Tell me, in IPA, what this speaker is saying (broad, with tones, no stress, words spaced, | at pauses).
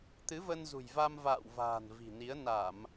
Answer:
t̪ɨ˨˦və˧nzṳ˨˩jva˧m va̰ː˧˨wva̤ː˨˩n vi̤˨˩ni˨˦ə̯ na˧˩˨m